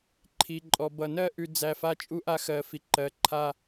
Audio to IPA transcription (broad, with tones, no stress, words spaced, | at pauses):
ǃʰi˨ ǃʼɔ˨bʌ˨ nɜ˦ʔʉ˨ d͡zæ˨ fa˦t͡ʃʼu˦ʔa˦xɜ˨ fi˨ǃɜ˨˦ ǃʰa˦